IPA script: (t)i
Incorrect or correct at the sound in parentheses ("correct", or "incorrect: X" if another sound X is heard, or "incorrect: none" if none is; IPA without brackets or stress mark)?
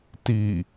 correct